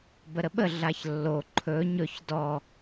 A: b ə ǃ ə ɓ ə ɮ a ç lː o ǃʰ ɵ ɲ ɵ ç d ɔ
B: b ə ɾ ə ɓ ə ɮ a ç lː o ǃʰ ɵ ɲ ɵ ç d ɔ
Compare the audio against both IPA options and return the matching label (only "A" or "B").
B